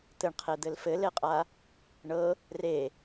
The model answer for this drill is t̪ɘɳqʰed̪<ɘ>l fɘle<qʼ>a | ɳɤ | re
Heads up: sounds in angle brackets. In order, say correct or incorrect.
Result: correct, correct

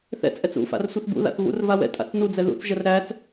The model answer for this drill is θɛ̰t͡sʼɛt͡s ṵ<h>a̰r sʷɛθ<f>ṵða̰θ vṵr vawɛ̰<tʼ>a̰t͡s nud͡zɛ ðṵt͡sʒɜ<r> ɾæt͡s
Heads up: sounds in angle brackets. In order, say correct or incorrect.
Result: incorrect, incorrect, correct, correct

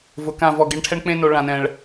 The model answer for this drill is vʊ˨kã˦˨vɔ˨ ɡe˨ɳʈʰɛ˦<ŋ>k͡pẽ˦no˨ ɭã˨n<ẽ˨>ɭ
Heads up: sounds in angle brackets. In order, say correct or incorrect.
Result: incorrect, incorrect

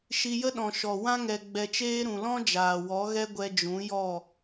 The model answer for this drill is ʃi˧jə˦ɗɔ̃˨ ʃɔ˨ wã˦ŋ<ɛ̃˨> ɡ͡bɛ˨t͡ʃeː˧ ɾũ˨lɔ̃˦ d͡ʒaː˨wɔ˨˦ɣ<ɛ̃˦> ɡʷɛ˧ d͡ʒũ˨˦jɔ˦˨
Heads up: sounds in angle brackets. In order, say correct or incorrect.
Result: incorrect, incorrect

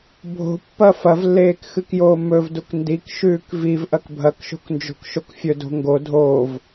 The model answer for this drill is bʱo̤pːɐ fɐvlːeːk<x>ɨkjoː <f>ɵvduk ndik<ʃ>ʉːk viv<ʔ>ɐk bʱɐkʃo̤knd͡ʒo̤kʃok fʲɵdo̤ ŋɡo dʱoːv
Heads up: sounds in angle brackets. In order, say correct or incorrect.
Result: correct, incorrect, correct, correct

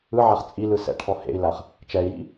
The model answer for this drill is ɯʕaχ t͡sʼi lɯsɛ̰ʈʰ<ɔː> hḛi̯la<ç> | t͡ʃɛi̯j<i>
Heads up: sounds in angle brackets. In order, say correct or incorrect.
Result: incorrect, incorrect, incorrect

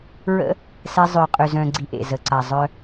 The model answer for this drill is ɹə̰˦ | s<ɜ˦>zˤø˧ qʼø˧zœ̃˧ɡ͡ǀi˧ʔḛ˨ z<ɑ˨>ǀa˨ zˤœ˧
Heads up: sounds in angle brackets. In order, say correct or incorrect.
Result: incorrect, incorrect

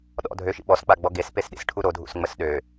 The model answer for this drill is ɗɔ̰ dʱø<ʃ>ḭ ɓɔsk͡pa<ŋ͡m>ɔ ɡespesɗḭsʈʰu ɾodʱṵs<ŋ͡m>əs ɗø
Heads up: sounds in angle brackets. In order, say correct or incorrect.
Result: correct, incorrect, correct

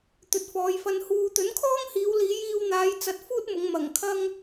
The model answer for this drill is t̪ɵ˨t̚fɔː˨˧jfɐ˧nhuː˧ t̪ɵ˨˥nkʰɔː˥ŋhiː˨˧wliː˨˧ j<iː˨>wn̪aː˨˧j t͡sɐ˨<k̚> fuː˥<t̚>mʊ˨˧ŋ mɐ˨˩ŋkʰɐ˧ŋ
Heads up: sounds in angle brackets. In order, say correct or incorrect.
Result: incorrect, incorrect, correct

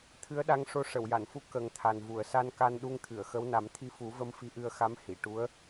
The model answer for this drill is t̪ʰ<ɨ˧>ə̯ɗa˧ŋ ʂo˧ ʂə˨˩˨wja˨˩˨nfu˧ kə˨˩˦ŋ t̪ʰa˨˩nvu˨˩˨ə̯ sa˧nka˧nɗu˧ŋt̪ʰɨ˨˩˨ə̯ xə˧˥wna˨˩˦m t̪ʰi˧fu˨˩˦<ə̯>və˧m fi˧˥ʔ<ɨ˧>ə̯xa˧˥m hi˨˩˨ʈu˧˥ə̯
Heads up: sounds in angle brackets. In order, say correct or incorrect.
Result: incorrect, incorrect, correct

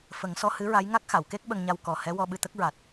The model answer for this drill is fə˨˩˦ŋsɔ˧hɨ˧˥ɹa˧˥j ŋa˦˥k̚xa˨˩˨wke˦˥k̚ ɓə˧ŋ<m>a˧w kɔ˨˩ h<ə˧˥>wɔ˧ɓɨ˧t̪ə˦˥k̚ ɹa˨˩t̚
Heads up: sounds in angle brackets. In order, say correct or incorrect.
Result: incorrect, incorrect

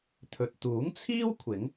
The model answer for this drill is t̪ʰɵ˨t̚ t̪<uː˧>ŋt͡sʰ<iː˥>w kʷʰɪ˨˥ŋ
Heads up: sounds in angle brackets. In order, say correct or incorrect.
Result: incorrect, correct

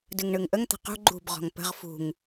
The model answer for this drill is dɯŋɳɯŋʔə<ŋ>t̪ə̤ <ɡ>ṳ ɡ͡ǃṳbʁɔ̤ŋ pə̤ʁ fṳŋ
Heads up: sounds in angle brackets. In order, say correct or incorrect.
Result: correct, incorrect

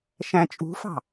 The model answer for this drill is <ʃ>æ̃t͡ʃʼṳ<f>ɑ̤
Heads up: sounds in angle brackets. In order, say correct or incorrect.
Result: correct, correct

